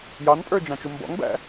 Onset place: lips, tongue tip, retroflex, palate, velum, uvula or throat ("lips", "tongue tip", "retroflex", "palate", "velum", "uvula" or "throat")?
palate